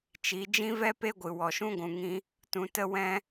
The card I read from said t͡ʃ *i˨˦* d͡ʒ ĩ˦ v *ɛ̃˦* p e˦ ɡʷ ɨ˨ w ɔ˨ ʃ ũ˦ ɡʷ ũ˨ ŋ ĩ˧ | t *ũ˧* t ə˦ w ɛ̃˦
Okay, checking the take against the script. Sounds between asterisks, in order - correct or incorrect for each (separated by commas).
correct, incorrect, correct